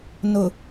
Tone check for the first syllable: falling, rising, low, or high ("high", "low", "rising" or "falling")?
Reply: low